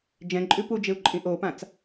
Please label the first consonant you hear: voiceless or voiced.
voiced